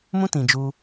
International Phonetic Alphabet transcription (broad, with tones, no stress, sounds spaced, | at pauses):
m ũ˦ t ĩ˨ d͡ʒ u˧